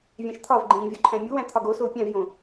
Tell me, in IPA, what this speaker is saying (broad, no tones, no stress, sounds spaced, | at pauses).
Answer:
vʲ æ̃ ʃ t̪ʰ ɒ v ɡ͡ǃ ĩː vʲ o ǃʰ æ̃ mʲ u w æ̃ t̪ʰ ɒ ɡ o s o u̯ pʲ æ̃ v j õ